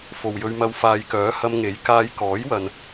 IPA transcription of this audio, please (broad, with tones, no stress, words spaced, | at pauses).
fo˨wjɵ˧ɥmɐ˧w faː˨jkœː˨˥ hɐ˧mŋe˨˥j kaː˧j kɔː˨˥jwɐ˨n